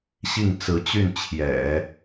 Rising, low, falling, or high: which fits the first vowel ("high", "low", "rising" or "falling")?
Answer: falling